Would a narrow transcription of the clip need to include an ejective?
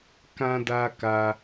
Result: no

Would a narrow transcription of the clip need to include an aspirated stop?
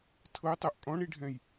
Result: yes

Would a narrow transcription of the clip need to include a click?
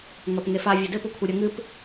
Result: no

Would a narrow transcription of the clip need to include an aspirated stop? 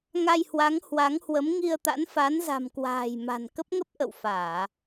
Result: no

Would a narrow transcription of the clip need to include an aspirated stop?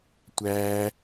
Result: no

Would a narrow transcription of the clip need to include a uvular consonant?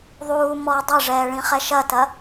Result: yes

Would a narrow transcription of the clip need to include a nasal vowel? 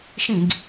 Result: yes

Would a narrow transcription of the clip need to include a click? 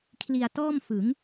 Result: no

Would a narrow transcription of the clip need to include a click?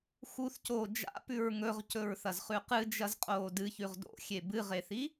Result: no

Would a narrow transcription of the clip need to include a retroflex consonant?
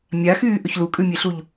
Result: no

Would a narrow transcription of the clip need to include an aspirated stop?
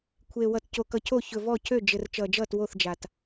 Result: yes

